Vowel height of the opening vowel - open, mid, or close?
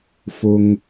close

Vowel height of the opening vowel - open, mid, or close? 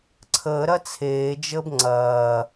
mid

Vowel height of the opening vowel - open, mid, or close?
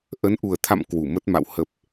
mid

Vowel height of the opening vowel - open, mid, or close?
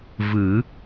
close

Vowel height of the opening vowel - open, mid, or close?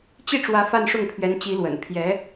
close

